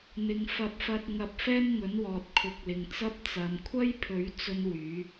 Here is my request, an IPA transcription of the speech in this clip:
n̪ ɪ˧ ŋ f ɐ˧ p̚ f ɐ˧ t̚ ŋ ɐ˧ p̚ f ɛː˥ n ŋ ɵ˨˥ n w ɔː˨ t̚ kʰ ʊ˨˥ k̚ l ɪ˨ ŋ t͡s ɐ˥ p̚ t͡s ɐ˨ m kʷʰ ɐ˥ j pʰ ɵ˨˥ ɥ t͡s ɵ˥ n w yː˨˥

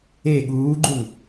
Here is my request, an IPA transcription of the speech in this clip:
e ɠ uː ɡ͡ǃ u ŋ

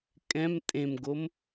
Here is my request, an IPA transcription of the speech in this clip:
kʼ ɛ̃ m tʼ ẽ m ɡ o m

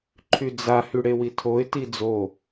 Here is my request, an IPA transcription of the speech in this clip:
ǃʰ y d͡z a h y ɽ e w i tʰ o ɪ̯ t i d͡z o

